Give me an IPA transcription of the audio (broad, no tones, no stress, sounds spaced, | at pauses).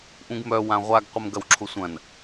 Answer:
ʔ ũ ɡ m œ w ã ʁʷ a ɡ qʷ ə m ɡ ɐ w ǁʰ ʊ sʷ ɐ̃ n